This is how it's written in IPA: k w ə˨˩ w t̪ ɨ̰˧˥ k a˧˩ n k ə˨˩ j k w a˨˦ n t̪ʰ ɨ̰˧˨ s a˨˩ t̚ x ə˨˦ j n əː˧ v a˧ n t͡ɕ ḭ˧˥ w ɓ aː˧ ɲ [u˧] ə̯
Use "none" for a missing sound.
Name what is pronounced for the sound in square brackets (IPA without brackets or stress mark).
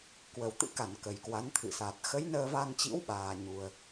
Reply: u˧